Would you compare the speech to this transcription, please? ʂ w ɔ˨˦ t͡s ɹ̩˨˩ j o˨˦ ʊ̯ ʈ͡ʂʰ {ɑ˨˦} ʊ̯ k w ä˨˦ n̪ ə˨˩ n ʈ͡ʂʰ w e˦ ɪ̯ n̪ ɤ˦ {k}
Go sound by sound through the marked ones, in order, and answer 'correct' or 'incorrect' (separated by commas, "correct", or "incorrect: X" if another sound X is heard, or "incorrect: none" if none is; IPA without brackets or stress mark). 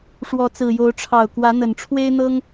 incorrect: ɑ˨˩, incorrect: ŋ